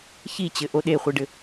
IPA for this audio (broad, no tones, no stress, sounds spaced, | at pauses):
ç i t͡ɕ ɘ ʔ o ɗ e χʷ i ɖ ɘ